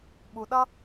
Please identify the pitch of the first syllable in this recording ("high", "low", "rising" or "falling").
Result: low